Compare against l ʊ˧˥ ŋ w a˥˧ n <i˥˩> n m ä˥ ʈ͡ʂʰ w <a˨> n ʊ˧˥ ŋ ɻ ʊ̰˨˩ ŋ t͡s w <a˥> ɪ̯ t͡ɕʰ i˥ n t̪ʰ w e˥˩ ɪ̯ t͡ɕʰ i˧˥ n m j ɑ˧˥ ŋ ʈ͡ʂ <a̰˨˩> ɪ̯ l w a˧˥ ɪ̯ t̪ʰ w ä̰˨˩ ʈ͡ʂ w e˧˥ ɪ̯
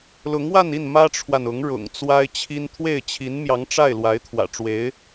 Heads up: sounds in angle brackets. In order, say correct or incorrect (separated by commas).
correct, correct, correct, incorrect